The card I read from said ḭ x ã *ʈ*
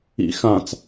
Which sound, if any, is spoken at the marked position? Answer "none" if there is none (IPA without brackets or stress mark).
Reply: t͡s